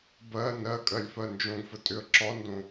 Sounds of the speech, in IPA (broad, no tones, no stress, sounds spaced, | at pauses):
b ɜ n ɜ kʼ ɜ lʲ f ɜ n d͡ʒ õ ɡ f ə tʼ ʏ ə̯ ǁ ɒ n d õ